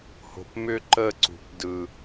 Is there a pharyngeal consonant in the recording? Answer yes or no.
no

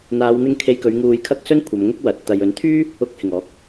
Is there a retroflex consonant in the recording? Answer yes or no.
no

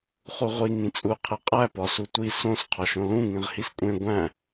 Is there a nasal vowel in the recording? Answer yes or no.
yes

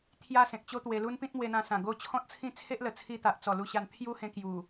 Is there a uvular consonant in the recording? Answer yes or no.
no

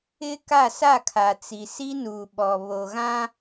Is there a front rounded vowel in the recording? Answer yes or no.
no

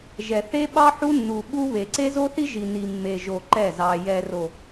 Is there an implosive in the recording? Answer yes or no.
yes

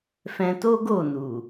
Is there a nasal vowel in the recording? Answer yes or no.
yes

